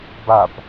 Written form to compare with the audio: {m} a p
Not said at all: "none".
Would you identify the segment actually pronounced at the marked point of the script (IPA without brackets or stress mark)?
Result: b